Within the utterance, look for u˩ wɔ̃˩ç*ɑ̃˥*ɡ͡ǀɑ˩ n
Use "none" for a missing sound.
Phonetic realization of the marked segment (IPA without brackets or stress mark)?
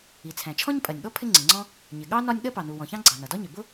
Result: ɑ̃˥